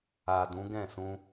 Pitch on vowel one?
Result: low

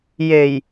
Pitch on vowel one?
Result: low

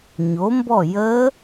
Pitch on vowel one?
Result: rising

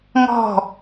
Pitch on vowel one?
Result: falling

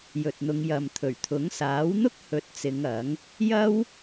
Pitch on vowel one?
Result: low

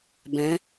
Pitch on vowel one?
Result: rising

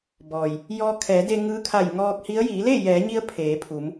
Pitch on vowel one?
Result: low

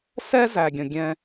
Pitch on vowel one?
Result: high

